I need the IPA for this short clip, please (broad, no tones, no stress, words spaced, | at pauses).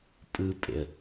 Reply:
pʼɯpʼḛə̯